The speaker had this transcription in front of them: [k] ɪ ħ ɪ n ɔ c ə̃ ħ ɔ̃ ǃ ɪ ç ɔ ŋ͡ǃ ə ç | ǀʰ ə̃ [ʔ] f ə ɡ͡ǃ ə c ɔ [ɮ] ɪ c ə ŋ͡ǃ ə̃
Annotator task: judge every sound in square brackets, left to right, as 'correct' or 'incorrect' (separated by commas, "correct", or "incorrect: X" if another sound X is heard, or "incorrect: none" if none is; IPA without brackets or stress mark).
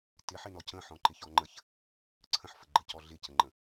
incorrect: t, incorrect: ħ, correct